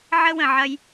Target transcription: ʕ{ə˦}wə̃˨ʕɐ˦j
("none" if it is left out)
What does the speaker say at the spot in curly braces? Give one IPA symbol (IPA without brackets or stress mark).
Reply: ə˦